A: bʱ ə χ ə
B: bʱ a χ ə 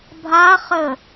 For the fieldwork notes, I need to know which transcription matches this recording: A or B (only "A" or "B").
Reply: B